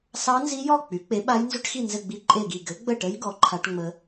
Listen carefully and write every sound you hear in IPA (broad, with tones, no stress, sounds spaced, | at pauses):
s ɑ˦˥ n z i˦˥ j ɔ˥˨ k͡p y˨˥ k͡p e˨˥ ɓ a˦˥ j n z ʏ˦˥ ʈ x i˥˨ n z ɘ˥˨ ɡ͡b i˦˥ ǃʼ e˥˨ ɡ i˥˨ ɡ ɘ˨˥ ɡ͡b ə˥˨ ʈ ə˦˥ j ɡ ɔ˨˥ ǃʰ a˦˥ ʈ ŋ͡m ə˦˥